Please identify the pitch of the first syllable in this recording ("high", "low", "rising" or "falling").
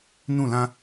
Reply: falling